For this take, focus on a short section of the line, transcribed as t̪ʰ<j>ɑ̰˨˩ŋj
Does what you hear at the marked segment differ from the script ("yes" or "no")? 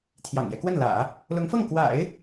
no